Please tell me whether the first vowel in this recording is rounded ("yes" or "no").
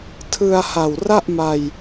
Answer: no